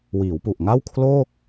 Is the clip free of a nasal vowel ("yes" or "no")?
yes